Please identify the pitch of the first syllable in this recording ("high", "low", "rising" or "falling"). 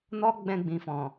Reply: high